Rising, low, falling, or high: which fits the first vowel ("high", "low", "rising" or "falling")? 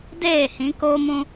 falling